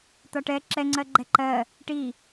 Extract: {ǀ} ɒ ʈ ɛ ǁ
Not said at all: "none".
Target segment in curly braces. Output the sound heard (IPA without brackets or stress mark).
t̪